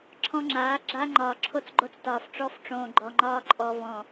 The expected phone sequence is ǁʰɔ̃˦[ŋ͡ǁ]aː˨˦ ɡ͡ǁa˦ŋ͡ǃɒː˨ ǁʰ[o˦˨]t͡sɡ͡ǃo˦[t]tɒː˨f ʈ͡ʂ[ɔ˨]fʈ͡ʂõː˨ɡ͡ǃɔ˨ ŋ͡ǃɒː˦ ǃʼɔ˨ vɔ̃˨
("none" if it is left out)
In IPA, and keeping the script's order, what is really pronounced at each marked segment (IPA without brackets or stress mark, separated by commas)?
ŋ͡ǁ, o˦˨, t͡s, ɔ˦